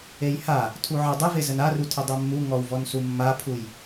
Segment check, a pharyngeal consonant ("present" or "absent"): present